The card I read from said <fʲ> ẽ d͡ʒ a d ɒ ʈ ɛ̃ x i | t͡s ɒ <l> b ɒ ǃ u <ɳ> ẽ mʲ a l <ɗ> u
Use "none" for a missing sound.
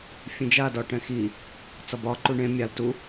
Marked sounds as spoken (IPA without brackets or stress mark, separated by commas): fʲ, none, ɳ, t